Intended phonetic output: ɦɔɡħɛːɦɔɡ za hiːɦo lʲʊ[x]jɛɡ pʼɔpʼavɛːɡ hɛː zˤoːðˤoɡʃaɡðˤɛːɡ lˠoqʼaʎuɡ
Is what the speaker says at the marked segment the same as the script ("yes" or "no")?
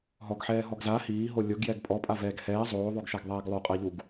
no